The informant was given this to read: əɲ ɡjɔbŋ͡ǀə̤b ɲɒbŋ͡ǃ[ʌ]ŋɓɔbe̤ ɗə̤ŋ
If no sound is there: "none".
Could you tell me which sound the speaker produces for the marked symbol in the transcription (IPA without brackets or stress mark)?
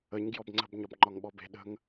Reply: ɒ